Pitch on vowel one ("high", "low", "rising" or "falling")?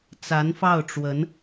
rising